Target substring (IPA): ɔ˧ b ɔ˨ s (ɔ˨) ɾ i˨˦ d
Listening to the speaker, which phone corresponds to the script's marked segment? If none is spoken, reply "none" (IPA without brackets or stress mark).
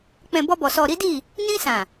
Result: ɔ˨